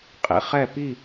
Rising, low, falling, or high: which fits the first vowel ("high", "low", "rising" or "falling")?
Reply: low